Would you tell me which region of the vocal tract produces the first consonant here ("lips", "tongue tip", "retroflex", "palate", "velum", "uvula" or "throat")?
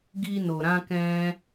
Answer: velum